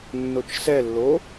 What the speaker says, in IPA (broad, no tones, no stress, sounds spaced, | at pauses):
nː o t͡ʃ s ɛ lː o